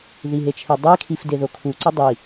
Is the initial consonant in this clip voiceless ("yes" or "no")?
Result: no